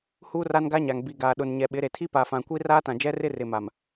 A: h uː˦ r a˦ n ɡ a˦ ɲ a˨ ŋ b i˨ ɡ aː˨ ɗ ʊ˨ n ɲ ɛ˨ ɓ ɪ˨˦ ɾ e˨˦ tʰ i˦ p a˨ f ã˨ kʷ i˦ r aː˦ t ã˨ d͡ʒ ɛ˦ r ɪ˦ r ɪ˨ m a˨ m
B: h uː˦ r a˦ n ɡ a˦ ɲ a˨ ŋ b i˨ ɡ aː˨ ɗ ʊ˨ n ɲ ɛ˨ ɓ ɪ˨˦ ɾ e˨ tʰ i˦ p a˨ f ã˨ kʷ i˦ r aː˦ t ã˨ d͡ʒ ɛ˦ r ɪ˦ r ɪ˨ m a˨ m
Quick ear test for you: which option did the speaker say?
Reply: B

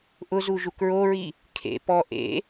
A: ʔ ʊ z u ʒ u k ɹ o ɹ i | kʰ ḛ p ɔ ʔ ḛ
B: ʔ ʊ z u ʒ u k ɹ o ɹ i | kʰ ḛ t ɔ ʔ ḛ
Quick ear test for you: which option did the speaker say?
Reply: A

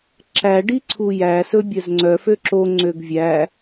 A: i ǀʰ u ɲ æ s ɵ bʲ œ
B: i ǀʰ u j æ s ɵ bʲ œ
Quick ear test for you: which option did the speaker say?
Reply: B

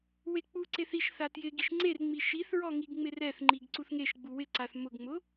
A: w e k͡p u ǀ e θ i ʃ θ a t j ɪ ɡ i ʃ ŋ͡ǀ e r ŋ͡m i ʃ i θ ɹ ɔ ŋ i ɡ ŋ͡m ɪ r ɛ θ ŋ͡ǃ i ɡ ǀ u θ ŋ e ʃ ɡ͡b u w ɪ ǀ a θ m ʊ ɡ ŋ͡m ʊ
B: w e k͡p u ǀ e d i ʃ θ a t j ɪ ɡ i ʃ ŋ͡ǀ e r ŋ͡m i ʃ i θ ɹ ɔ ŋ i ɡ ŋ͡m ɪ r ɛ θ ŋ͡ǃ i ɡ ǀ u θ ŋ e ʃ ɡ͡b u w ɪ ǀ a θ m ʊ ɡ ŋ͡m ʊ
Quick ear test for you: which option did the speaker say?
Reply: A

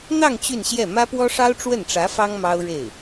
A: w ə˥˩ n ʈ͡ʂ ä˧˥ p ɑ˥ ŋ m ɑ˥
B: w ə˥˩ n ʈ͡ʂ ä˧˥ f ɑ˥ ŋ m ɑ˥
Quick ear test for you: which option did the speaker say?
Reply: B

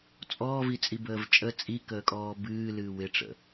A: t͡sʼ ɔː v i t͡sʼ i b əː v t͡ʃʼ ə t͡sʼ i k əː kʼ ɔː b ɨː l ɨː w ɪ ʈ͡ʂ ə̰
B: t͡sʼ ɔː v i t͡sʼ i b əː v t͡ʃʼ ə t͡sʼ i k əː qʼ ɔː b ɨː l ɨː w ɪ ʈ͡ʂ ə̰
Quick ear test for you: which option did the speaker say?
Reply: A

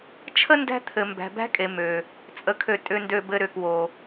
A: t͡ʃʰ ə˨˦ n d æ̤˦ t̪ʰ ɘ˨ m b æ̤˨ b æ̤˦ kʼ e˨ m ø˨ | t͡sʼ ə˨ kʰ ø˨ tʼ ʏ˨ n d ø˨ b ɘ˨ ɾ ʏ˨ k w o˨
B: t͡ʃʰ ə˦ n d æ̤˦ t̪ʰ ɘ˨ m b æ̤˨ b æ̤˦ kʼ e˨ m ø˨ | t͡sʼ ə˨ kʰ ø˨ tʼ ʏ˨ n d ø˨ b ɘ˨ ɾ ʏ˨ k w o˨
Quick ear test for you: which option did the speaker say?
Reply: B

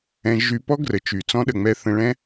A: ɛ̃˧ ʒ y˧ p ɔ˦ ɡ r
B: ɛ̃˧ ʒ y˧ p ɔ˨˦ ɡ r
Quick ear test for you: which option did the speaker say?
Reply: A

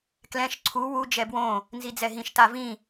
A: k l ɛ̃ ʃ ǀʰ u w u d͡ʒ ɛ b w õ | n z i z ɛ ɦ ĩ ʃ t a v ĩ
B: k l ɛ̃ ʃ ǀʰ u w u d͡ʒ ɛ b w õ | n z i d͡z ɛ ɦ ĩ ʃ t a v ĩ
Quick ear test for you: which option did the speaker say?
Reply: B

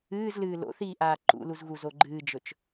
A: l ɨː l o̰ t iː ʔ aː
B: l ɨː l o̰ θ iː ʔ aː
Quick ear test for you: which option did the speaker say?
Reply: B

